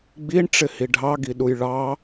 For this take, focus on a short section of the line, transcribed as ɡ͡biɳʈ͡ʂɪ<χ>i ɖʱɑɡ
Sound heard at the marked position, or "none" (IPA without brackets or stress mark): h